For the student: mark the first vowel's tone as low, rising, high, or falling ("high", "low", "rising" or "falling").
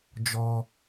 high